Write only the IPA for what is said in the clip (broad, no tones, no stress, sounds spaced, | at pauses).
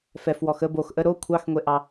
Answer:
f ɛ f w ɔ x ə b o x ʔ ə ɾ o kʷʰ ɑ x ŋʷ e ʔ ɑ